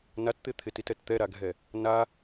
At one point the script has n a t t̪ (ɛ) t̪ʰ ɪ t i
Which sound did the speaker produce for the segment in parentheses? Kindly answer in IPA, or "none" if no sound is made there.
ɪ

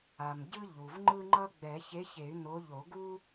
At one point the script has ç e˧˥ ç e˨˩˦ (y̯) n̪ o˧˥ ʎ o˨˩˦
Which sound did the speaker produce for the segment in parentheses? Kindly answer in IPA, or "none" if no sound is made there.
y̯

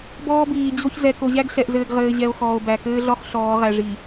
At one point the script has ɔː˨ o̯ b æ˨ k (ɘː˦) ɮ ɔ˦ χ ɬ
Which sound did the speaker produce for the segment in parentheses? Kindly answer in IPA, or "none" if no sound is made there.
ɘː˦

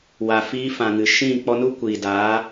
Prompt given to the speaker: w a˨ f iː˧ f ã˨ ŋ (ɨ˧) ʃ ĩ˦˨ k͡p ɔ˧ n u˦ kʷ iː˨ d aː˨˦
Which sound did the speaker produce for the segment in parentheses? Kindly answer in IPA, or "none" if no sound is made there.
ɨ˨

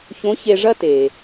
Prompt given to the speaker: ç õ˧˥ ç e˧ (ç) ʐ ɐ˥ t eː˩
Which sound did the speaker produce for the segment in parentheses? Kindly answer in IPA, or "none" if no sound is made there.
none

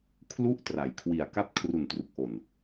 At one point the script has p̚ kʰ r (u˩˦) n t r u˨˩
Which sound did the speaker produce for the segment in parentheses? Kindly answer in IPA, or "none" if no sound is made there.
u˨˩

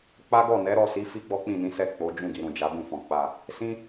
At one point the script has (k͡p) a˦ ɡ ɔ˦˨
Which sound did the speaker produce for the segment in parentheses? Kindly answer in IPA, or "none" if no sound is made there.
k͡p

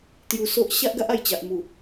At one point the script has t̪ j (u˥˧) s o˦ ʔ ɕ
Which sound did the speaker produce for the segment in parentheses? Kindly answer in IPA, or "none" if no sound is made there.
u˧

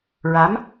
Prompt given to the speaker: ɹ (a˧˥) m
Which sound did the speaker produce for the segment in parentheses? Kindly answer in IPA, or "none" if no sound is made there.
a˧˥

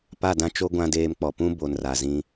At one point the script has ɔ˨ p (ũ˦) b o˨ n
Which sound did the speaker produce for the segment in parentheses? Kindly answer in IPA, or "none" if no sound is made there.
ũ˦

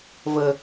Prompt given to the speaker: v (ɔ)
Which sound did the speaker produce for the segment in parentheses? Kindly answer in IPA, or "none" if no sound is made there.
ə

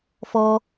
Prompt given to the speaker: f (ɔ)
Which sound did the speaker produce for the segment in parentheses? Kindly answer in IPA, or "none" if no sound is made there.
ɔ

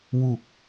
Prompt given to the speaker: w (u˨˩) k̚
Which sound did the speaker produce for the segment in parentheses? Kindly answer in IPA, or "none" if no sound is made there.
u˨˩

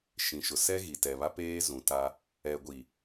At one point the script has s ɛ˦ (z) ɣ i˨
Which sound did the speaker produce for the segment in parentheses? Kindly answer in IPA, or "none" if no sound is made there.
none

